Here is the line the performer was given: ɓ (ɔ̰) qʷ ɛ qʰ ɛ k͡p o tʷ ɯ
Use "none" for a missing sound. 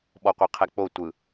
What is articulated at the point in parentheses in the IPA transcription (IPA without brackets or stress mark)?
ɔ